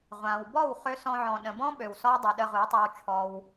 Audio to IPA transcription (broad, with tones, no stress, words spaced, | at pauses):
ʁʷã˨w bɔ˦˨wχø˧ sɔ̃˧ ʕɔ̃˨ɗə̃˨bɔ̃˦ ɓø˨wsɔ˦w dˤu˨ɗə˧ ʁu˨˦ tˤi˧wt͡ʃʰɔ˧w